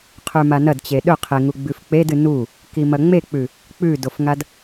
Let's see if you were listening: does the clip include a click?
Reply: no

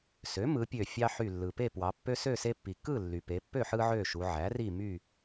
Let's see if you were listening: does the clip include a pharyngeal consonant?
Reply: yes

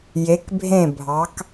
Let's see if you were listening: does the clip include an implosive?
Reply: no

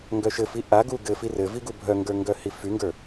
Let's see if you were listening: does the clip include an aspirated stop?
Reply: no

